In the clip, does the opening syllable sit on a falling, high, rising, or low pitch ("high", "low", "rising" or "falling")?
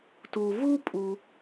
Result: low